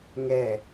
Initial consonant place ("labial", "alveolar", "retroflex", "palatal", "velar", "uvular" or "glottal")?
velar